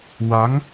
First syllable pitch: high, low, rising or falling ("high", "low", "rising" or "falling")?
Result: rising